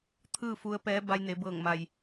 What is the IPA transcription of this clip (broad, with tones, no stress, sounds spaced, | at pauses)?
t̪ʰ ɯː˥˨ f u˧ ə̯ p ɛː˧˥ b a˧ j n e˩˧ b ɤː˧˩ ŋ m a˩ j